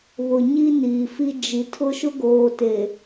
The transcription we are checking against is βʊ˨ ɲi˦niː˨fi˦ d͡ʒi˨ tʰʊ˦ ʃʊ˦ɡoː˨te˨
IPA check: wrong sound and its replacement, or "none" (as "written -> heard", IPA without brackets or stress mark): none